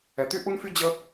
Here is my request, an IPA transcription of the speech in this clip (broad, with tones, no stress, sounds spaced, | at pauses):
ɛ˧ t̪ y˥ ʔ u˥ n f y˥ d͡ʑ ə˥